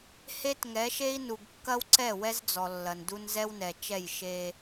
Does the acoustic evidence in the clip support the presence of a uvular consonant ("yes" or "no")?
no